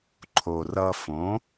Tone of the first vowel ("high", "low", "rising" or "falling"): low